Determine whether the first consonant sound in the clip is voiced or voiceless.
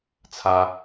voiceless